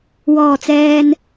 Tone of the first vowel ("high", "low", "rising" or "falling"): low